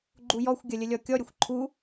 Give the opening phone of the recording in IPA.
ɡ͡ǃ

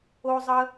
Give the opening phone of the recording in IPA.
o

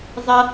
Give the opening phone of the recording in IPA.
zˤ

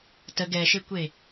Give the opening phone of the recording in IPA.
t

